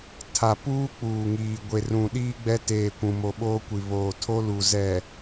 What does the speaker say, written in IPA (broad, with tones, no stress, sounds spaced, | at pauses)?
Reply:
tʰ a˨ p uː˦ k͡p uː˨ ŋ iː˨ ɡʷ e˨ r ũ˨ ɗ iː˦ ɡ͡b ɛ˦ t eː˨ kʷ ũ˨ m o˨ ɓ oː˦ kʷ i˨ β oː˨ tʰ o˦ l u˨ z ɛ˨